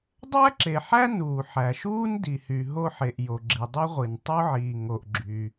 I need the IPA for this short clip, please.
dˤ æ˥ ǁ e˩ ħ æ˥ n uː˩ ħ æ˩ ʃ uː˥ n d i˩ h y˩ ɦ o˥ ħ e˩ ʔ j o˩ ɡ͡ǁ i˩ dˤ i˥ ʁʷ i˩ n tˤ o˥ ʕ iː˩ ŋ o˩ ʔ ɡ͡ǁ y˩

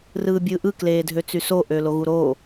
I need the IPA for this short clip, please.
r ɯː bʲ ɯː ʔ ɯ k l eː dʱ ø t͡s y s o ʔ ø l o ɣ u ɾ o

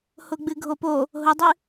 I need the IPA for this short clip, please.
h ʊ ɡ͡b ɨ ɡʱ o p o | ɦ ʊ dˤ ɨ

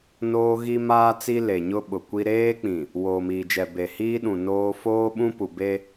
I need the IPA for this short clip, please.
n oː˦ ɣ i˦ m aː˦ t͡s i˦ l e˨ ɲ ʊ˦ ɓ ʊ˨ kʷ i˦ ɾ eː˦ k͡p ĩ˨ | w oː˨ m iː˨ d͡ʒ ɛ˨ b e˨ h iː˦ ɗ ũ˨ n oː˦ f oː˦ ɓ ũ˦ p u˨ b e˦

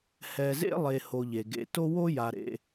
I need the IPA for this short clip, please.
h ɛ˨ z ḛ˦ lˠ e˨ h o˨ ʎ e˩ ɡ ḛ˨ t o˥ w o˥ j a˨ ɾ ḛ˨

